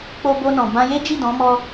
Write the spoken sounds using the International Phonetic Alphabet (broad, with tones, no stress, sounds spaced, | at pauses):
k͡p o˧ b o˧ n ɔ̃˨ b ã˧ j e˦ d͡ʒ i˦˨ d ɔ̃˨˦ m ɔ˧